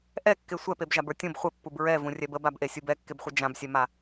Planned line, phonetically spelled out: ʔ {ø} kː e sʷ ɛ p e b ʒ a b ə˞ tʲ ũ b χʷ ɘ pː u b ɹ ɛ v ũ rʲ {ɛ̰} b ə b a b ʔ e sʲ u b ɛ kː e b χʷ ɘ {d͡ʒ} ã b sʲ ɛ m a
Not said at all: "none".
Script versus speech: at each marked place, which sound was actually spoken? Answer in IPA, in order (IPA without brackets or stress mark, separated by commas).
ɛ, ɛ, d͡ʒ